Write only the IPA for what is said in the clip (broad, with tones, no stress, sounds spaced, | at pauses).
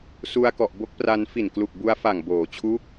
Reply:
s u˧ a̯ k ɔ˨˩ ʔ b o˦˥ k̚ p r a˧ n f i˨˩ n k l u˨˩ k̚ b u˧ a̯ f a˨˩ ŋ b oː˩˦ t͡ɕʰ u˦˥ k̚